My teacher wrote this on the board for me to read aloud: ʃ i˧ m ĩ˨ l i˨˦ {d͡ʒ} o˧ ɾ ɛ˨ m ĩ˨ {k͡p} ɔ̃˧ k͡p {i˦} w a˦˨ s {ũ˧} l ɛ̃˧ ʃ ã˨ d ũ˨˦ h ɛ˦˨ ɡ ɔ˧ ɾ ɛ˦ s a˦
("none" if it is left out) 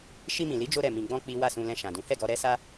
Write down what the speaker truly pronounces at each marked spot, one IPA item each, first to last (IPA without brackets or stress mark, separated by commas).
d͡ʒ, ɡ͡b, i˦, ũ˧